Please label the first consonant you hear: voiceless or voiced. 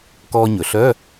voiceless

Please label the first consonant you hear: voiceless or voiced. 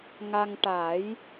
voiced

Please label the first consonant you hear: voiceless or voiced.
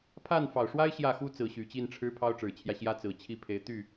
voiceless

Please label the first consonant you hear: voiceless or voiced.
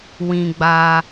voiced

